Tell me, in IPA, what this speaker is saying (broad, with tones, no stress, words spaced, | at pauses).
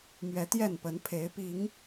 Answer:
mɥɛ˨˦t̪jɛ˥˨npə˨˦n pʰe˨˦ɪ̯pi˨˦ŋ